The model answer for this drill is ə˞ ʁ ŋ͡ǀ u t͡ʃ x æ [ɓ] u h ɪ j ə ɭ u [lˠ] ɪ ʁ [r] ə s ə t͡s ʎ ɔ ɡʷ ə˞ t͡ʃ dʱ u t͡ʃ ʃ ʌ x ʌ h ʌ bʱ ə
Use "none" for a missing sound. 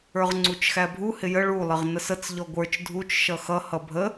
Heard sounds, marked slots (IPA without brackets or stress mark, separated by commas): bʱ, lˠ, n